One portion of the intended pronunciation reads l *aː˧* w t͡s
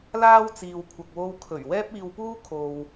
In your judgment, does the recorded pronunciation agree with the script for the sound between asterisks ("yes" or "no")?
no